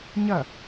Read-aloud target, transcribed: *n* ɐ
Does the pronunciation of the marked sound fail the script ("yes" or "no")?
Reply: yes